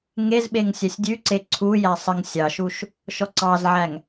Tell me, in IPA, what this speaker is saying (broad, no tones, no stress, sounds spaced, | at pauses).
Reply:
ŋ e z ɓ e ŋ sʲ æ sʲ dʲ ʉ ǀ e ǀʰ u j æ sˤ ə ŋ sʲ ɑ ʃ u ʃ | ʃ ɔ ǀ ɑ z ʕ æ ŋ